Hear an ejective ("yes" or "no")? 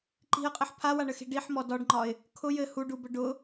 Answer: yes